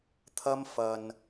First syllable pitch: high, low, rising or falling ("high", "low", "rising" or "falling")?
high